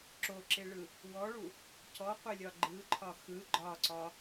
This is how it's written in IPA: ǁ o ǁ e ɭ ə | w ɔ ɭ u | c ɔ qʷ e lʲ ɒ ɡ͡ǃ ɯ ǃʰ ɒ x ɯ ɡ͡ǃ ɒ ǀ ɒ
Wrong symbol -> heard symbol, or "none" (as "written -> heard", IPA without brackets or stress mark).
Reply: ə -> ɯ